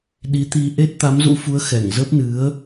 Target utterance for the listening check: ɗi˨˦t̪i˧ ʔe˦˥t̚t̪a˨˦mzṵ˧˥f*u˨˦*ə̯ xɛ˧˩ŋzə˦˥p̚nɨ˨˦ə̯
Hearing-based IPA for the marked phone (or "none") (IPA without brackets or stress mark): u˨˦